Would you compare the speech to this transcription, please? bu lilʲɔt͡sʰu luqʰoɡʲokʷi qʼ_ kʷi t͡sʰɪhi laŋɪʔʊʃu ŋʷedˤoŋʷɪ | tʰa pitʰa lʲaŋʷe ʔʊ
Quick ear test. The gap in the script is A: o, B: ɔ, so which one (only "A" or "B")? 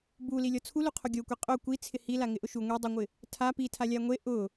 A